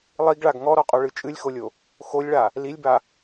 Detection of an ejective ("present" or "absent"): present